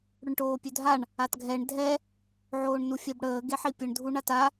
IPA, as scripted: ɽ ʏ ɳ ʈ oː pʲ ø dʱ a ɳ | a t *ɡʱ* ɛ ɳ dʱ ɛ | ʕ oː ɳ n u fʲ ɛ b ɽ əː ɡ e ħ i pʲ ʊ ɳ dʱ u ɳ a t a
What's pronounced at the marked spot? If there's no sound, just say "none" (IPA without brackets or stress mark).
ɡʱ